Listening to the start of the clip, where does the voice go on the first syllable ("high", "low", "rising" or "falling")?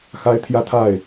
high